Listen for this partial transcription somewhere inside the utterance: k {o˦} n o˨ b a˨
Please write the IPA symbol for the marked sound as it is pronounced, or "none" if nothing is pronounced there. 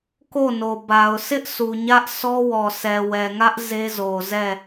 o˦˨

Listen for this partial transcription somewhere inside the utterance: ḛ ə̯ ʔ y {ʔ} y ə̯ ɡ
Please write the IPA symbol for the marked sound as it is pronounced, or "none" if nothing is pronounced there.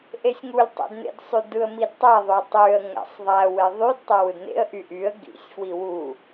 ʔ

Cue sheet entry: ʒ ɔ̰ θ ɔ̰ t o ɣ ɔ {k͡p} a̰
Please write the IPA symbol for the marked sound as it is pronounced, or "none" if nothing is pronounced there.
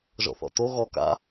k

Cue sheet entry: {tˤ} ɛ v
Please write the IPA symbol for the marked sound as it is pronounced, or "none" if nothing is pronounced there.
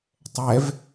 tˤ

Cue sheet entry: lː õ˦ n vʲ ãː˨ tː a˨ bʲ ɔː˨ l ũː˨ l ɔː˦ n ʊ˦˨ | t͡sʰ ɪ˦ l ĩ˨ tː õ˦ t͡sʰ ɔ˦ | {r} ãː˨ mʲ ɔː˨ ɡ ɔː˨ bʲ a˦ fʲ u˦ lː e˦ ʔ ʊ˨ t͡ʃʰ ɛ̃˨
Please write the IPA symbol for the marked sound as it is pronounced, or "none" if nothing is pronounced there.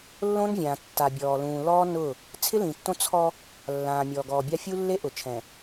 lː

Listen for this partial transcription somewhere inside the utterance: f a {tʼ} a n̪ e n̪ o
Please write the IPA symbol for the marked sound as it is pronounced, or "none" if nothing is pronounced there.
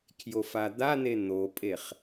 d̪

